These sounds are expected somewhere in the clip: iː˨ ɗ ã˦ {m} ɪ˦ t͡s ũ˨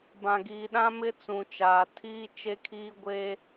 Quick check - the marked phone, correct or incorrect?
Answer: correct